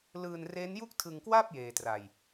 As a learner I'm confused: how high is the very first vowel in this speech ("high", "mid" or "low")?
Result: high